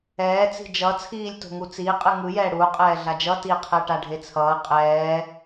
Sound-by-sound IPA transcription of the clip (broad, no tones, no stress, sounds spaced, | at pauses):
ɛː t͡s i̤ d͡ʒ ʌ t͡sʰ iː lʲ t o̤ ŋ u t͡s iː qʼ ɯ ŋ ɯ j ɛː ɽ u qʼ ɛː ɮ a d͡ʒ ʌ t iː qʰ ɛ ʈ a ɖʱ e t͡sʰ ʌː qʼ ɛː